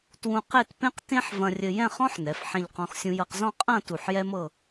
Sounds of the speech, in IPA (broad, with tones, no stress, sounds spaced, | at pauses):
t w ũ˧ q e˥˧ t p ẽ˥ q t ẽ˥ ħ v ɐ̃˧ rʲ ɘ˧ j ɛ̃˥˧ χ ɔ̃˥ ħ n ɛ˩˧ f ħ ẽ˧ ʎ q ɔ̃˧ x sʲ ũ˧ j ɤ˧ q z ɔ̃˥˧ qʼ ɐ̃˥˧ t u˧˩ ħ j ɛ˥ m ɤ˥˧